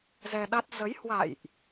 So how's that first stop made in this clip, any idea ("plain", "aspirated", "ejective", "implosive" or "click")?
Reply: implosive